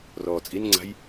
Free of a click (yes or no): no